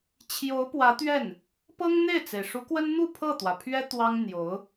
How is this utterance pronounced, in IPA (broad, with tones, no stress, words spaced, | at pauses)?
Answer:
t͡ɕʰjo˧˥ʊ̯pwä˧˥t̪ɥɛ˥˩n | pɤ˥ŋn̪e˥˩ɪ̯t͡se˩ɪ̯ ʂu˧˥kwə˥n n̪u˥˧ pʰɤ˥˩t̪wä˩pʰɥɛ˥ t̪wɑ˥ŋ n̪jo˧˥ʊ̯